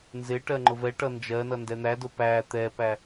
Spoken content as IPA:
nzɪ ʈɜŋ͡ǃʊvɛʈʌ nd͡ʒɜnʌ ndɛn̪ædʊ pæ t̪ɛpæ

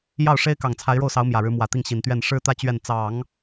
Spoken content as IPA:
jɑ˥˩ʊ̯ʂe˥ɪ̯ kɑ˨˩ŋt͡sʰa˧˥ɪ̯ɻo˥˩ʊ̯sɑ˧˥ʊ̯ mjä˨˩ɻɻ̩˧˥mwä˨˩t̪i˥˩ŋ ɕi˨˩nt̪ɥɛ˥˩n ʂɻ̩˥t̪ä˥˧ t͡ɕɥɛ˥˩n t͡sɑ˨˩˦ŋ

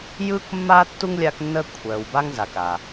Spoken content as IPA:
jɯ˥kmːa˥ tːu˥ŋlʲa˦knːə˦ kʷʰœ˨w ba˥ŋza˨ka˨

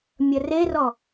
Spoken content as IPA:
mʲərerɔ

